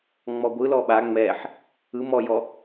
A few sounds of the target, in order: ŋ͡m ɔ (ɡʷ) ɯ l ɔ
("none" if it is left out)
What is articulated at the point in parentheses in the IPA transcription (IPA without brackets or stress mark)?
ɡʷ